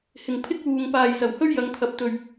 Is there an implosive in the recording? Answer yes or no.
no